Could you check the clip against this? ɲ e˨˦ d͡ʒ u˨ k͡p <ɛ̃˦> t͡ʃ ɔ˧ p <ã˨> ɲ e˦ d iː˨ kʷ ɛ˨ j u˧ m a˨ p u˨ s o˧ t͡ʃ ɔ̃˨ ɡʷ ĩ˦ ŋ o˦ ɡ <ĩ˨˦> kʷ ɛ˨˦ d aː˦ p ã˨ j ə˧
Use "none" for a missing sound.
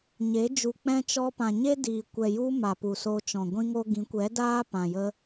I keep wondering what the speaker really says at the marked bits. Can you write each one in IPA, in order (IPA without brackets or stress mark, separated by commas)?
ɛ̃˦, ã˨, ĩ˨˦